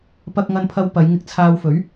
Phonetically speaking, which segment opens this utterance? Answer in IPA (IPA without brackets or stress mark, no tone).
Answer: p